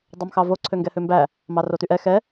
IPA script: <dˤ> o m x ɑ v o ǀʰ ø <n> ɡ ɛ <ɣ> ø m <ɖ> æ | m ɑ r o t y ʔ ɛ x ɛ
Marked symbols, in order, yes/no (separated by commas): yes, no, no, no